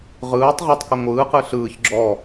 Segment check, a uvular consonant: present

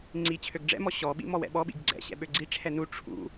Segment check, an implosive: present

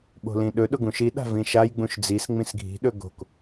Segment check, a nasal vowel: present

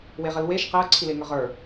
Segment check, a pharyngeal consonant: absent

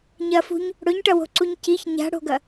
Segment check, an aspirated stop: absent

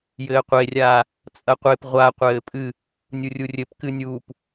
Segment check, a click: absent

